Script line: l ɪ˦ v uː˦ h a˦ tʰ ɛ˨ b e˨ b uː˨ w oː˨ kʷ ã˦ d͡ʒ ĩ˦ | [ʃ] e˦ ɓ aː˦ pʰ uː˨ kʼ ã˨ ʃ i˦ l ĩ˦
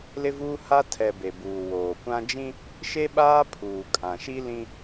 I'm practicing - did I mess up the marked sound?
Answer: no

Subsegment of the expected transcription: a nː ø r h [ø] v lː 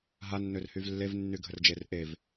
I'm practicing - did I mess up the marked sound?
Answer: yes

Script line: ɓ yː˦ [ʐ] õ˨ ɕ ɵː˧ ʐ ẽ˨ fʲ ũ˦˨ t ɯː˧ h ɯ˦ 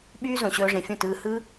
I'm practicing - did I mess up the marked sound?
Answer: yes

